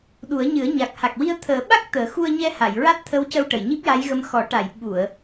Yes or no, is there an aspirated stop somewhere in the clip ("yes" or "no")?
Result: yes